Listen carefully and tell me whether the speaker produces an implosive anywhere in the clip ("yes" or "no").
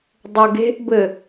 no